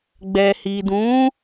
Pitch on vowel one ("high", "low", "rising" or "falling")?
low